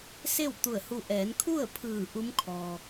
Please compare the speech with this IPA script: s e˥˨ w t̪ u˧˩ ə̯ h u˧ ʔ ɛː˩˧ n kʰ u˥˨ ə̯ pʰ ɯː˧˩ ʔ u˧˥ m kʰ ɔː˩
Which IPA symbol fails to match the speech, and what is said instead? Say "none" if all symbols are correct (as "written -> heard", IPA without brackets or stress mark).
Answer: none